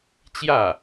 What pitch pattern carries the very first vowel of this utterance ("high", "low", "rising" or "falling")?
falling